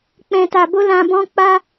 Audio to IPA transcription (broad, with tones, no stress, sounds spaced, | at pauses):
k͡p ɛ̃˨ t a˨ b o˧ l ã˧ b ɔ̃˦ k͡p a˦